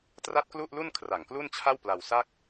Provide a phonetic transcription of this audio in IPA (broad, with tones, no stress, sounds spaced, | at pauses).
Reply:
t r a˥˩ t̚ k l u˥˩ ʔ l u˥˩ n kʰ r a˨˩ ŋ k l u˥˩ n t͡ɕʰ a˥˩ w p l a˧ w s a˥˩ k̚